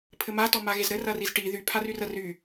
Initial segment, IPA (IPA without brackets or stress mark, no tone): pʰ